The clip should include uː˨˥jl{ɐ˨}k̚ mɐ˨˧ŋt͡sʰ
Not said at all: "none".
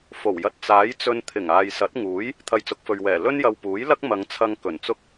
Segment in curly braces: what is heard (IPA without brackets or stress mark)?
ɐ˥